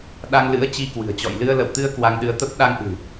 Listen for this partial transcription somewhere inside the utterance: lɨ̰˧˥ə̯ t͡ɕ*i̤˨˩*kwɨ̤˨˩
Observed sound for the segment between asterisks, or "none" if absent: i˧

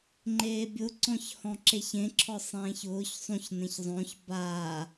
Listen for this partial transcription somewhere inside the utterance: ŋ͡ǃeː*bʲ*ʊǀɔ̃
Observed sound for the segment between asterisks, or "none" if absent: bʲ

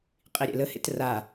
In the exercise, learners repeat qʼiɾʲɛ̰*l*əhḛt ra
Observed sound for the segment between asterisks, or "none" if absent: l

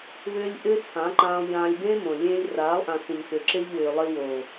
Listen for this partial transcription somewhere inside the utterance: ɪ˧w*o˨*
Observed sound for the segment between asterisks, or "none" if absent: oː˨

